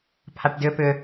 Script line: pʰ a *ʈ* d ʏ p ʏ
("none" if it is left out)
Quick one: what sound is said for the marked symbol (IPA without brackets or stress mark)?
ʈ